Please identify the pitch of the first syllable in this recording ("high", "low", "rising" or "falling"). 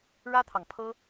high